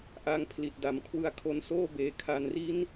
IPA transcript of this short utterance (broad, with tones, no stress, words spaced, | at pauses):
ʔa˧ŋ pʰli˨˩t̚da˨˩mkʰwɯ˦˥a̯ kʰo˧nsoː˥˩beː˩˦ kʰa˨˩nri˦˥n